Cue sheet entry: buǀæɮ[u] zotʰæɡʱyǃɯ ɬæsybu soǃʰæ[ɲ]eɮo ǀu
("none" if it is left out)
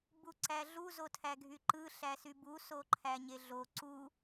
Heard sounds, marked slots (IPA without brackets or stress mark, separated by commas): u, ɲ